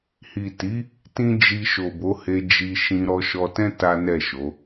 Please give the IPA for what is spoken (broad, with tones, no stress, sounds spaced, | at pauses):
h i˨ t i˨˦ | t ĩ˦ d͡ʒ i˧ ʃ o˨ b o˨˦ h e˧ d͡ʒ i˧ ʃ ĩ˧ ɾ ɔ˧ ʃ ɔ˧ t ɛ̃˦ t a˦ n ɛ˦˨ ʃ o˨˦